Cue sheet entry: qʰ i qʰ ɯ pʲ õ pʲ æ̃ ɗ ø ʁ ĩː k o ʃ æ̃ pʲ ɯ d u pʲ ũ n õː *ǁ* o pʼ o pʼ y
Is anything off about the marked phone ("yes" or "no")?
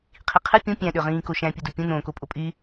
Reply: yes